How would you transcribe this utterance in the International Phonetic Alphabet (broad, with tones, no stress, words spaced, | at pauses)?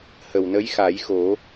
hə˨˩wnə˧˥jxa˨˩˦jxo˨˩˦